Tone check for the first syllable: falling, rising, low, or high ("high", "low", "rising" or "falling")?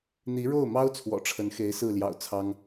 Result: rising